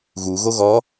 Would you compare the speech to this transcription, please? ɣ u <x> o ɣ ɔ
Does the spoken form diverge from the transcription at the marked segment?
yes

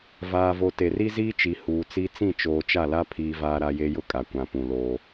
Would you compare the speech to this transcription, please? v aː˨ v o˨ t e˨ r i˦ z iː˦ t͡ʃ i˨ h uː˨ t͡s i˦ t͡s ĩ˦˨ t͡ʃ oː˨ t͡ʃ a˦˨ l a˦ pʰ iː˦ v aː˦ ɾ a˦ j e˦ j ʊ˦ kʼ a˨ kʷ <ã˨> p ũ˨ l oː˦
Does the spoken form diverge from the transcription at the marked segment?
no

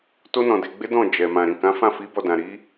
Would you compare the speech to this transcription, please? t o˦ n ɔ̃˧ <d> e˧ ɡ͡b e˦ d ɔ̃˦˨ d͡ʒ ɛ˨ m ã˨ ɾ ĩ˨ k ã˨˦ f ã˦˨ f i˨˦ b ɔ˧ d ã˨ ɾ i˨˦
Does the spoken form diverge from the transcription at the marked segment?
no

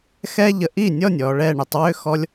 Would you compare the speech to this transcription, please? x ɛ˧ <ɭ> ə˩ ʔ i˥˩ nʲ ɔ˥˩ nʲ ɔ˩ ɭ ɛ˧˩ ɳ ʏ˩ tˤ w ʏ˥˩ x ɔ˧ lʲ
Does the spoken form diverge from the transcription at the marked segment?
yes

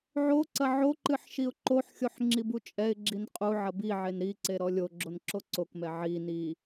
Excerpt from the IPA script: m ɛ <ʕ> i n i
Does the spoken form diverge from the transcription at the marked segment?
no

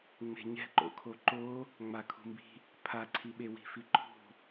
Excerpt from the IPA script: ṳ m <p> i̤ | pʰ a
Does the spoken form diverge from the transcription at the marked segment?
yes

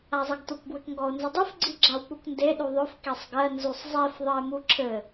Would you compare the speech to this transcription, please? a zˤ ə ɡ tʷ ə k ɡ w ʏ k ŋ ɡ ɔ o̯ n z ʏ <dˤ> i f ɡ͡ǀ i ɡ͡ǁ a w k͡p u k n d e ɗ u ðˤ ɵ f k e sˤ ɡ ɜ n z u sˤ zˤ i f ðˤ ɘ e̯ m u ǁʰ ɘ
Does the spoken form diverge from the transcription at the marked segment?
no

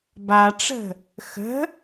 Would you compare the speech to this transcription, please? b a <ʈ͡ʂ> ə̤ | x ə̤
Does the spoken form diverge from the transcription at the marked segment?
no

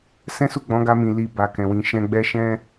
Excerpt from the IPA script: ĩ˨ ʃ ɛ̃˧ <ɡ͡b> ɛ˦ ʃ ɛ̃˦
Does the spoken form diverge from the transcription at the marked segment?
no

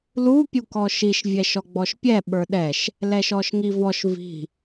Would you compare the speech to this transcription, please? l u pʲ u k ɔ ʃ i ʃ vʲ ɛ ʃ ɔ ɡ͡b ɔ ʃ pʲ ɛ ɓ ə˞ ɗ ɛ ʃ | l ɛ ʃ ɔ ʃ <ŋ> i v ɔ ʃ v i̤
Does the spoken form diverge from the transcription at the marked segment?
no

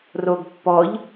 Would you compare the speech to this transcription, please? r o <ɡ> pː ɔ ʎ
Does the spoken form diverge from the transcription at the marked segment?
no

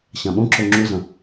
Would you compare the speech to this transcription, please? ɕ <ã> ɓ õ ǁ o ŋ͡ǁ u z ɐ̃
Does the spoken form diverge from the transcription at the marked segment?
no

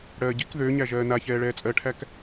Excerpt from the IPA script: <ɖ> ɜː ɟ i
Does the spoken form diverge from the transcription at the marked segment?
yes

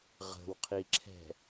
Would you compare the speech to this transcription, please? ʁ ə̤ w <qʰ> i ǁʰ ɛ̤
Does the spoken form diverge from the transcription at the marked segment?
no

